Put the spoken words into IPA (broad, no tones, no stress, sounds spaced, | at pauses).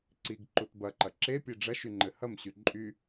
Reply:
ǀ i ɡ ǃ u t b ɐ ǃ ɐ ǁ e pʲ e ɖ͡ʐ ɐ ʃ y ŋ͡ǃ ɘ h ɐ m ɕ y ǃʼ y